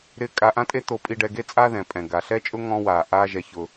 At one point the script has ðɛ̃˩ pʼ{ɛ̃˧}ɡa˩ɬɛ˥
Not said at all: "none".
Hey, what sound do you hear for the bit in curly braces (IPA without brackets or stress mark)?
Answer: ɛ̃˩